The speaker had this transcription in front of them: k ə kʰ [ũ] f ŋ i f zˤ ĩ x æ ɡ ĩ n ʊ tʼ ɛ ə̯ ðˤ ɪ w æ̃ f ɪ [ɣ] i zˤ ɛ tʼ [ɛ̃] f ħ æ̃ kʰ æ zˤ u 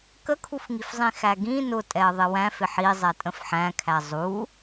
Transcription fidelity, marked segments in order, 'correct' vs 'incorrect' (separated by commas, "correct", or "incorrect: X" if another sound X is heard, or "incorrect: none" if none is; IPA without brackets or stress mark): incorrect: u, incorrect: ħ, incorrect: ə̃